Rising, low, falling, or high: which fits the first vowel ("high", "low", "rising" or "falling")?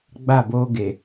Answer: falling